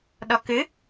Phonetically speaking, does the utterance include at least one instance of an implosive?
yes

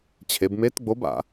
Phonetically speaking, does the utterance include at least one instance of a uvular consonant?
no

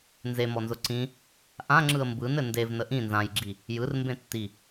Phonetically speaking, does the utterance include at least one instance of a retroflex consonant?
no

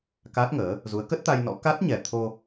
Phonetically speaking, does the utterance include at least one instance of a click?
no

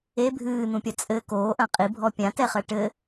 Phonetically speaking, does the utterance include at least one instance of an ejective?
yes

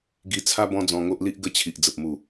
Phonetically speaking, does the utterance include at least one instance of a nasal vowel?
yes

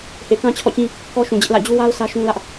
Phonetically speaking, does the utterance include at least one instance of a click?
no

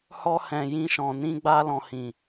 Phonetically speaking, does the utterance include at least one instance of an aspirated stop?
no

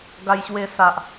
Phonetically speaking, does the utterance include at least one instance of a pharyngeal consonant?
no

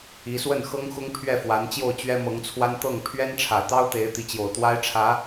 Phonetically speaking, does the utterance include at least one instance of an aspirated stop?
yes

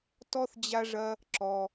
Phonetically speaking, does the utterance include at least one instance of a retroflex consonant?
yes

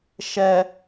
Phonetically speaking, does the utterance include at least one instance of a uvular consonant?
no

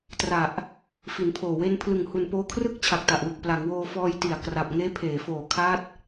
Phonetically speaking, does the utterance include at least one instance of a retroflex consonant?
no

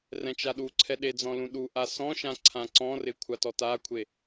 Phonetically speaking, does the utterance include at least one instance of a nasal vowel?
yes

